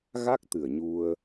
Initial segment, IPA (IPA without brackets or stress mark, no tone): ɣ